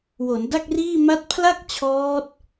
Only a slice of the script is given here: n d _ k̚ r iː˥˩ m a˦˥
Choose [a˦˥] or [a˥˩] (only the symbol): a˥˩